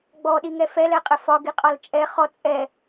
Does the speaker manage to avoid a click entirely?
yes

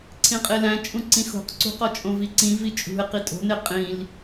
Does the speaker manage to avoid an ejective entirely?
no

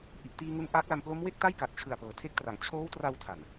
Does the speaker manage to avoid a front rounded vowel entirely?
yes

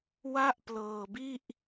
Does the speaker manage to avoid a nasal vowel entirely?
yes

